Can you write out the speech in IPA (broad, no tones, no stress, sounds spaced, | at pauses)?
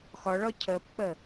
x ɒ ɭ ɒ cʰ ɜ p k͡p ɜ